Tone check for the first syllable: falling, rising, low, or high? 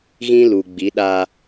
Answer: high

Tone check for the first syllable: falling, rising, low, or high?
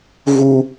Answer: high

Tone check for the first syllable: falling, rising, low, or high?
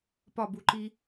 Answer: falling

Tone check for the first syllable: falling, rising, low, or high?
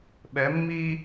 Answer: rising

